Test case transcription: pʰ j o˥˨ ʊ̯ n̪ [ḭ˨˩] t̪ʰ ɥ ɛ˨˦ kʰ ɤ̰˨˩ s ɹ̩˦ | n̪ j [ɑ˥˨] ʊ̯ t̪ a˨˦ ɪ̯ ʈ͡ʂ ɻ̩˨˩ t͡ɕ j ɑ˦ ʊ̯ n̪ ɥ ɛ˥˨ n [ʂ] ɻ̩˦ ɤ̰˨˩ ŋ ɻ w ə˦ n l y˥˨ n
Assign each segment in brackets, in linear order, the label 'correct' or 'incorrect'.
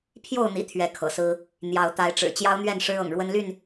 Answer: correct, incorrect: ɑ˨˦, correct

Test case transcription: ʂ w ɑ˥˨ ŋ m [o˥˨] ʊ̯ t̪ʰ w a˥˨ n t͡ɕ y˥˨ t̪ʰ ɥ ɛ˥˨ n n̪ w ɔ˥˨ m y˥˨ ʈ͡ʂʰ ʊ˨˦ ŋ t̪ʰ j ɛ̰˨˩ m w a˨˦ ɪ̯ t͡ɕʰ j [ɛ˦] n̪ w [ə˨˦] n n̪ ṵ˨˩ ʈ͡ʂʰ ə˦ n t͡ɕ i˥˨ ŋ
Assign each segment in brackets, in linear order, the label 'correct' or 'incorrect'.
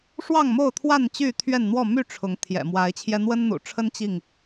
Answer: correct, correct, incorrect: ə˦

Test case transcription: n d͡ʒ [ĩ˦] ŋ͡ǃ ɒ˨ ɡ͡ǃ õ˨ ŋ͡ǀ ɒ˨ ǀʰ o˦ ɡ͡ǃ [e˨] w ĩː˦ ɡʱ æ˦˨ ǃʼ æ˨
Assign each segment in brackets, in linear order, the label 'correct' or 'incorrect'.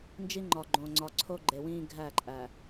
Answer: incorrect: i˦, correct

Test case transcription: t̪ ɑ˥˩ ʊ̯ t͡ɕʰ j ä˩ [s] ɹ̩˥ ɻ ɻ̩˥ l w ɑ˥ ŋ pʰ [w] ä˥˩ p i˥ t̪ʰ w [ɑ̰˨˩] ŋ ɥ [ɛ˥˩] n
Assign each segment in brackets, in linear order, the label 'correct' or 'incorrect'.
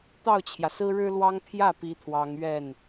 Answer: correct, incorrect: j, incorrect: ɑ˧˥, correct

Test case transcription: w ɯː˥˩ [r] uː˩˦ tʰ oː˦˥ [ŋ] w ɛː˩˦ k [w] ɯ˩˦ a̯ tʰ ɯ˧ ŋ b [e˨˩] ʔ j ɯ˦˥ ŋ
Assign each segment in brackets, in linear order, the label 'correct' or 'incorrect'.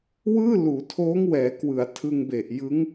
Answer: incorrect: l, correct, correct, correct

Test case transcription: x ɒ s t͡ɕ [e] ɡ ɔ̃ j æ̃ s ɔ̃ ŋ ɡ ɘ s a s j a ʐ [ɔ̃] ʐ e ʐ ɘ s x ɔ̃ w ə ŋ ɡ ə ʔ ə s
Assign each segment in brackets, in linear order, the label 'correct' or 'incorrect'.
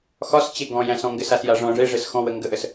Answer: correct, correct

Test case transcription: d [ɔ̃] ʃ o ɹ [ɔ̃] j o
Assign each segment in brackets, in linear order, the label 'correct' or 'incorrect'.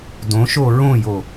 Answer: incorrect: õ, incorrect: õ

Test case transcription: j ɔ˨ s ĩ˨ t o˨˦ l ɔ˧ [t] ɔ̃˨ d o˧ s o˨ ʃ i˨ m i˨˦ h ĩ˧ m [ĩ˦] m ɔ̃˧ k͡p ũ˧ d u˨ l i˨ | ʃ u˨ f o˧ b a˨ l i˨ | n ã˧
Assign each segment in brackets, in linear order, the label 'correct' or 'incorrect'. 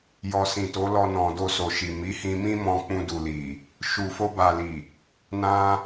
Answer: incorrect: n, correct

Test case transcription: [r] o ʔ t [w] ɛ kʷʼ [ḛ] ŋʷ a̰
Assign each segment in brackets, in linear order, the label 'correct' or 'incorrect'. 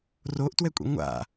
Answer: correct, correct, correct

